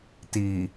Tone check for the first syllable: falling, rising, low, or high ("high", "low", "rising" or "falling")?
low